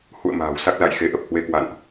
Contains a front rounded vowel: no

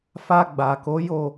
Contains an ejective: no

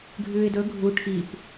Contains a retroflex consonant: yes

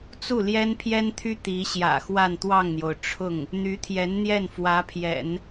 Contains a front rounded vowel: yes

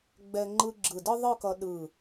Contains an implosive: yes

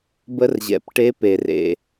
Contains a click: no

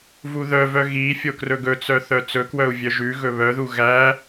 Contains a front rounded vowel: yes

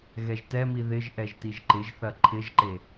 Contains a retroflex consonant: no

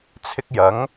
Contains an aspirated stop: yes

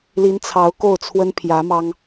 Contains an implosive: no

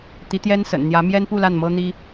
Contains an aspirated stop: no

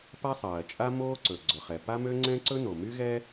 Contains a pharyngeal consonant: no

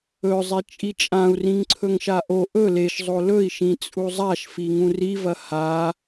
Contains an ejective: yes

